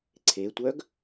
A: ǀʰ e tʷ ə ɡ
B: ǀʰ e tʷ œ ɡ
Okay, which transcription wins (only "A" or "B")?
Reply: B